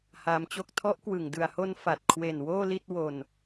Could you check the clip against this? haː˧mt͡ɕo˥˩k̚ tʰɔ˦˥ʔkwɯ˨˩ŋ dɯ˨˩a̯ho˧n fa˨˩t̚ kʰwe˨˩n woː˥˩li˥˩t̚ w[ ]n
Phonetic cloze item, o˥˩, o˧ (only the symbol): o˧